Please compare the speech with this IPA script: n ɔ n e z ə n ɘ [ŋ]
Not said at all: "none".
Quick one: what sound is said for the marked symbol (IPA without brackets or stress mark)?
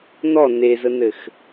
x